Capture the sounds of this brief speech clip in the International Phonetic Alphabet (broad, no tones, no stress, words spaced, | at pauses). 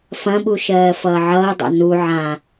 fɐ̃ɓu ʃɜːfʌːʕʌːdˤa̰ nu ʕã